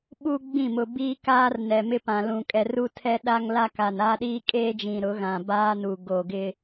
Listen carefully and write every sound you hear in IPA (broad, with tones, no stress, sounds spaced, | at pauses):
ɓ u˦ ɡ͡b ĩ˦˨ m ʊ˨ b iː˦ k aː˦ r n ɛ˨ m ɪ˦ p ã˨ l ũ˨ kʼ ɛ˨ r u˦ tʰ ɛ˦ ɗ a˦ ŋ l a˦ k a˨ n a˦ ɗ iː˦ kʼ eː˦ d͡ʒ ĩ˨ ɾ ʊ˨˦ ɣ ã˨ b aː˦ n u˨ ɡ o˨ ɡ ɪ˦